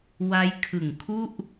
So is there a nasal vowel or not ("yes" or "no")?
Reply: no